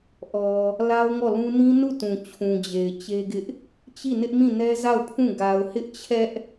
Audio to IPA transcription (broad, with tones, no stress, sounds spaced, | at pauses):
ʔ ɔ˨ | l a˦ ʊ̯ ŋ ɔ˦˨ l ũ˦ n ĩ˦ n u˦˨ t ũ˨ t͡ɕʰ ũ˨ d͡ʑ e˨ ɪ̯ t͡ɕ e˦ ɡ ɪ˦ ʔ | t͡ɕ i˦˨ n ɪ˦ ʔ m ĩ˦˨ n ɛ˦ z a˦˨ ʊ̯ pʰ ũ˦˨ ɡ a˨ ʊ̯ h ɪ˦ ʔ t͡ɕʰ ɛ˦ ʔ